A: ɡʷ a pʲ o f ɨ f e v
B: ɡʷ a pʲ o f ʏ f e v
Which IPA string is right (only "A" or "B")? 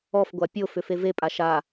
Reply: B